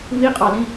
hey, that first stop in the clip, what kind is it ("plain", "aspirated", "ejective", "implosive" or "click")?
ejective